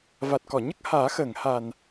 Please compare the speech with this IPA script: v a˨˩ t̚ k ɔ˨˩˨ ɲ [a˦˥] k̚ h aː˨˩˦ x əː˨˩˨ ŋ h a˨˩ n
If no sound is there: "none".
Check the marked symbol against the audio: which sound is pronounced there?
ə˦˥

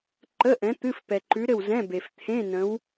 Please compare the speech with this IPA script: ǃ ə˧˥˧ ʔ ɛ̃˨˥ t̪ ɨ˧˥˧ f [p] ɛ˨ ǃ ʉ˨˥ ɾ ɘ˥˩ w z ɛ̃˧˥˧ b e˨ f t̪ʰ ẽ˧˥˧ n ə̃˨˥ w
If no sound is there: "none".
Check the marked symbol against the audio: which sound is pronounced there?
p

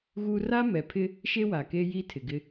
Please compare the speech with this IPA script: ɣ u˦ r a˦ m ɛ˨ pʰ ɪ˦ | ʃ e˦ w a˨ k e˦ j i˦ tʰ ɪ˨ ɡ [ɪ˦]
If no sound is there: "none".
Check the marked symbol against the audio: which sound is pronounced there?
ɪ˦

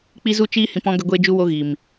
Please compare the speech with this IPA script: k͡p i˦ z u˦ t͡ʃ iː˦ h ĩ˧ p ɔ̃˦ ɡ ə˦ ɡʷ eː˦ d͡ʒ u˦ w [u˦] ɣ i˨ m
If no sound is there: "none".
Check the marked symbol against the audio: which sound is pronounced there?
o˦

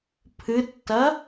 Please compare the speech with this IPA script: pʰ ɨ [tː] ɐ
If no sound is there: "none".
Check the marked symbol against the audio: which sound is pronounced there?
tː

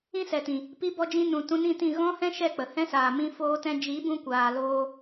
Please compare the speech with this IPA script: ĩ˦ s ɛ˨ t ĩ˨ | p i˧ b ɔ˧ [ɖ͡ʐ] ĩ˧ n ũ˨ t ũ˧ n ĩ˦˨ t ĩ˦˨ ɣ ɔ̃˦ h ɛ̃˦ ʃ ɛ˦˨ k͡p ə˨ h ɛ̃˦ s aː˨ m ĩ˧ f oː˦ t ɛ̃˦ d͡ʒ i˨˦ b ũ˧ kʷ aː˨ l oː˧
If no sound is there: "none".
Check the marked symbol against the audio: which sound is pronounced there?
d͡ʒ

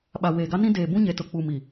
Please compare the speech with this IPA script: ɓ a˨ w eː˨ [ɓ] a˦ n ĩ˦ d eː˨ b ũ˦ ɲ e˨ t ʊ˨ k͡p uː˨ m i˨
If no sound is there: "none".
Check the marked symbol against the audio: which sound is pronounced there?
ɡ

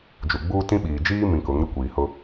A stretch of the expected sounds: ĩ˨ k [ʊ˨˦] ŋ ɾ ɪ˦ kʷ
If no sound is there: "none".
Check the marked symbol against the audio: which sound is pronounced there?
ʊ˨˦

